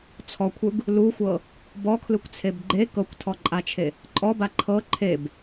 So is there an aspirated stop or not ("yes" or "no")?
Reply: yes